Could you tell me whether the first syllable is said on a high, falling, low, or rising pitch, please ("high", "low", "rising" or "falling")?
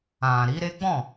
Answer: low